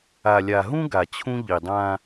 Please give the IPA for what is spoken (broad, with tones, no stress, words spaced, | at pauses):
a˨lʲa˨ɦũ˦ ɡa˨t͡ɕʰũ˦ʎi˨dˤã˦